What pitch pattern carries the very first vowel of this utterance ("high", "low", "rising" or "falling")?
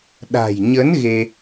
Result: low